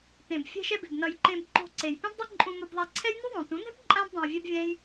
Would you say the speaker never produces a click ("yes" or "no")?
no